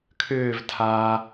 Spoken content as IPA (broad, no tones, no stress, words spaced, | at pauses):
kʰʏːvtʰaː